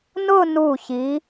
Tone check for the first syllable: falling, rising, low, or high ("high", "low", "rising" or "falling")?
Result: falling